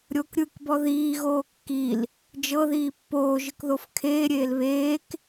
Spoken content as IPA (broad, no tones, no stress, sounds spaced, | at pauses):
ɾʲ o k ɾʲ ɯ k b ɔ ð iː ɣ oː kː i l | d͡ʒ ɤ ð iː pː oː ʒ ɯ k ð o f kʰ eː ɾʲ eː l β eː k